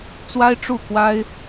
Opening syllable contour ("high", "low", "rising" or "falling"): high